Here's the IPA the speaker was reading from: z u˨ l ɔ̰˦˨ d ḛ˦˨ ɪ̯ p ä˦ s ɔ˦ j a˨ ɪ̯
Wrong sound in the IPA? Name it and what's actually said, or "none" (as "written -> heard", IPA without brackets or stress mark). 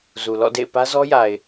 s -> z